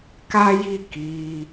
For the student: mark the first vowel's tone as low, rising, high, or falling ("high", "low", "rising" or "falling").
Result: high